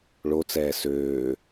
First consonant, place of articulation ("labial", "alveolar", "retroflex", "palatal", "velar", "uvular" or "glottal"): retroflex